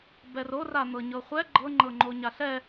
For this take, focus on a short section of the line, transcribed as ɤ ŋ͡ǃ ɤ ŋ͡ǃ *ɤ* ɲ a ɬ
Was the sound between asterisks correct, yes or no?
no